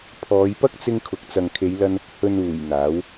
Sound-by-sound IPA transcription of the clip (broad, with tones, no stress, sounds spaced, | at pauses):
pʰ ɔː˨˧ j p ɐ˥ k̚ t͡s ɪ˧ ŋ kʰ ʊ˨ k̚ t͡s ɐ˨ ŋ kʰ e˨˧ j l ɐ˧ n | h ɵ˨ n uː˨˩ j n̪ aː˨˥ w